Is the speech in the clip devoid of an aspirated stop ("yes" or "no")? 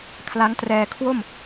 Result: no